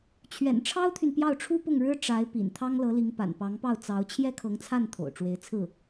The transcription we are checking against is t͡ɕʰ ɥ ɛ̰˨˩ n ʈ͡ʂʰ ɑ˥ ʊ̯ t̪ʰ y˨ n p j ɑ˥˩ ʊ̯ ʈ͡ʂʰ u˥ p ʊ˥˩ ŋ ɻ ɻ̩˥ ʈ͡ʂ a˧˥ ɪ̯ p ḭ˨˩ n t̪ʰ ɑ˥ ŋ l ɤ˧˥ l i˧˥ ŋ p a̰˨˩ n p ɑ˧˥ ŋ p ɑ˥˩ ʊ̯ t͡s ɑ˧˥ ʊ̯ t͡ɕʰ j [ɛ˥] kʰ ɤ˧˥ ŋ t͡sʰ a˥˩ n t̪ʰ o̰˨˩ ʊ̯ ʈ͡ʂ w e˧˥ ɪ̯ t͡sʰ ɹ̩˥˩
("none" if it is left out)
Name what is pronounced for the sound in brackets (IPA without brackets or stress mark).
ɛ˥